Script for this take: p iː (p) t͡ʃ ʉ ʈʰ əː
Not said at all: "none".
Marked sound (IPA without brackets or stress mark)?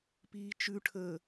none